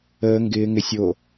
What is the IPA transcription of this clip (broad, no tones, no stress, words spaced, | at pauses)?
əː ŋɡɪː ŋɪ sʲo